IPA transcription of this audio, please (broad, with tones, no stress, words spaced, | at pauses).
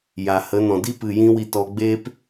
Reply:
ja˨hə˨˦nɔ̃˨ di˦ pɨ˨ jĩ˦wi˧tɔ˧ ɡ͡beː˦p